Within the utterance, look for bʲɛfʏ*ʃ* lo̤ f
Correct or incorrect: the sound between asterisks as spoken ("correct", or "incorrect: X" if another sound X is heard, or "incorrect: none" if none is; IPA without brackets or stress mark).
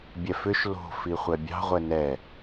correct